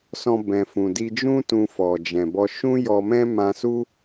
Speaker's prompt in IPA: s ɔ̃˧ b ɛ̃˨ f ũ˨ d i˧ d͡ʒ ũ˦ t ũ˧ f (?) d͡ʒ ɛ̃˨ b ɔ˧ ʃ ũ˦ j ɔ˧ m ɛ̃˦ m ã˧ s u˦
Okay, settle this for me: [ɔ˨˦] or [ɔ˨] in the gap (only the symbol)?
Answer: ɔ˨